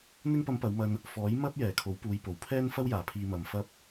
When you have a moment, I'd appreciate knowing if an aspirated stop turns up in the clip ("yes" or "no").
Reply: yes